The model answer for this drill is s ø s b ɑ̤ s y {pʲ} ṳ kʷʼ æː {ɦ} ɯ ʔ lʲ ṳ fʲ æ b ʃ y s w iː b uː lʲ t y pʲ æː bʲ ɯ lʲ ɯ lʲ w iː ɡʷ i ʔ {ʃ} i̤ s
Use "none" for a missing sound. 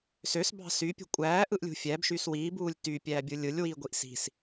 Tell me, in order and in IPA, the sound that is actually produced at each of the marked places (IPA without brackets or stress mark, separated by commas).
pʲ, ʔ, s